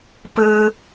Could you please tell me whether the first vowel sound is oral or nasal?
oral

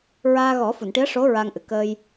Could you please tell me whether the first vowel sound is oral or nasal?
oral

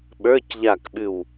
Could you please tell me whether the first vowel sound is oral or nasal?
oral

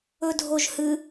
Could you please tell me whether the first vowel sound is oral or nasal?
oral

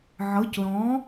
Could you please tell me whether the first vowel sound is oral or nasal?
oral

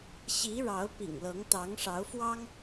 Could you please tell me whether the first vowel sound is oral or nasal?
oral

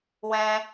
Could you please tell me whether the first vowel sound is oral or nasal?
nasal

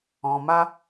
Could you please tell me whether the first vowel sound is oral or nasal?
nasal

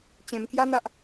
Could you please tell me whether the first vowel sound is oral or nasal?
nasal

